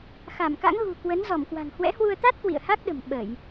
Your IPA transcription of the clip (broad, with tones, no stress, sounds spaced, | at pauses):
x a˧˩ m k a̰˧˥ ŋ ɣ ṳ˨˩ k w ə˨˦ n z ɔ˧˩ m k w a̤˨˩ ŋ h w ɛ̰˧˥ h w u˧ ə̯ t̪ a˦˥ t̚ k w ḭ˧˨ ə̯ h a˦˥ k̚ ɗ ə̤˨˩ m ɓ ə˧˩˨ j